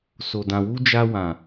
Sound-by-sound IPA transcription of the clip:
s o˨ d ã˨ w u˧ d͡ʒ a˧ w ã˨

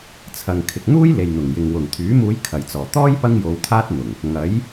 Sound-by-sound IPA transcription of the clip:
t͡sʰ ɐ˨ ŋ kʰ ɪ˨ k̚ n̪ uː˥ j l e˨ j n̪ ʊ˨˩ ŋ j ɪ˨ ŋ w ʊ˨˩ ŋ t̪ʰ yː˨˥ m uː˨˧ j kʰ ɐ˨˩ j t͡s ɔː˨˩ t̪ ɔː˥ j p ɐ˥ ŋ j o˨˧ w t̪ʰ aː˥ t̚ n̪ ʊ˨˩ ŋ | ŋ ɐ˨˥ j

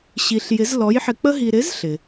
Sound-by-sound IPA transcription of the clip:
ɕ i˧ ɬ j ɪ˧˥ z l ɔ˧˥ j ħ ɪ˧ k͡p ə˥ ɦ i˧ ɾ ɪ˧˥ z ɬ ɪ˩

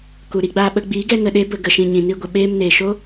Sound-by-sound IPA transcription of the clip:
k u˨ ɾ i˧ ɡ͡b aː˧ ɓ ə˧ ɡ͡b iː˨˦ ɡ ɛ˧ ŋ ə˨ ɗ e˦ b ə˧ ɡ ə˨ ʃ ĩ˨ ɲ ĩ˨ n i˧ ɡʷ ə˨ ɓ eː˧ m n eː˨ ʃ o˦

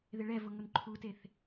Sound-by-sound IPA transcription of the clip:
ð ɪ ɭ ɛ v ʊ ŋ ʊ n ǃʰ u t e θ

